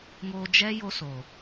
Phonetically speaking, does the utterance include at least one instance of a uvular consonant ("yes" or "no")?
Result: no